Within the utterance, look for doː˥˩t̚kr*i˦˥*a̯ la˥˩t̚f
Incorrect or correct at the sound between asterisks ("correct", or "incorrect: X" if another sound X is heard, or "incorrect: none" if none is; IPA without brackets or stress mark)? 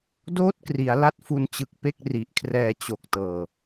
incorrect: i˩˦